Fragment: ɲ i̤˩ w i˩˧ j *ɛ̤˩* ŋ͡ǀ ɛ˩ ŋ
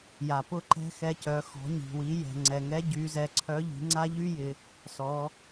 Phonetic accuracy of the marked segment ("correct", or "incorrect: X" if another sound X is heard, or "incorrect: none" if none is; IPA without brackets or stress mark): correct